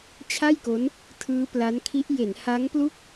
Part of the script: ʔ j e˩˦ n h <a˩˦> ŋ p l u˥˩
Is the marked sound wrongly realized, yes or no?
yes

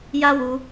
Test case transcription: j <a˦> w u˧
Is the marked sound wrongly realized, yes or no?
no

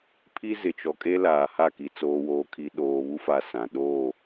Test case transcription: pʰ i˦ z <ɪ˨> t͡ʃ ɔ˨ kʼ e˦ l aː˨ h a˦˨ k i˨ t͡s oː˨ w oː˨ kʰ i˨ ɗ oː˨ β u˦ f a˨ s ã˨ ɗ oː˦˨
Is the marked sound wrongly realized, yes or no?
no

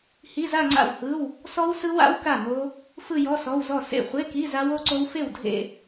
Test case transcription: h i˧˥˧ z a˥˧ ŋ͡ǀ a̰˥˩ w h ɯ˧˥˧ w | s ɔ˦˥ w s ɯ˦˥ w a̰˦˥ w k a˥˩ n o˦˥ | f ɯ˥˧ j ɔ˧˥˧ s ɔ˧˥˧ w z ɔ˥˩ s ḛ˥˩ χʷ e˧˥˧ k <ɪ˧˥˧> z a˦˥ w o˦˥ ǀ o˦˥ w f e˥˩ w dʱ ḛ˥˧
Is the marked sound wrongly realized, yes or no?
yes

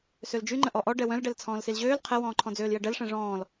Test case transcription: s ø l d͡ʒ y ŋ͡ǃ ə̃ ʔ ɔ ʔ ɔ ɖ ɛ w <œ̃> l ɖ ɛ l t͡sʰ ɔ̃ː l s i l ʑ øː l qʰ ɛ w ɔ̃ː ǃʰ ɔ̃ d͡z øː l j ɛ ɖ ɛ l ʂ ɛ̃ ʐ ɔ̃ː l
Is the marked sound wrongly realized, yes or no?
no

